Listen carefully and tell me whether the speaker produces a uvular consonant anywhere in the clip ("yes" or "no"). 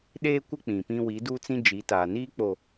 no